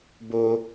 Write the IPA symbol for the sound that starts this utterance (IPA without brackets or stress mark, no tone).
b